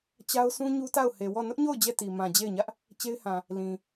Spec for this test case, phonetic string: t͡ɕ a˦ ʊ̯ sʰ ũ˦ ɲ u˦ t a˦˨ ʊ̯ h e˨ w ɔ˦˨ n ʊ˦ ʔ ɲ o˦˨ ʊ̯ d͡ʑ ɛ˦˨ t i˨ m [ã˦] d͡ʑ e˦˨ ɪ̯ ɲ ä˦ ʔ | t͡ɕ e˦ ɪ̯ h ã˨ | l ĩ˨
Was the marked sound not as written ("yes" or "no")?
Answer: yes